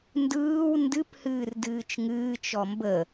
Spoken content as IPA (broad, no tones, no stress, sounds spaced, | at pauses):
n d ɯː w n d ɨ p h ɨː r d ɨː t͡ʃ ŋ ɨː t͡ʃ ɔ m b ə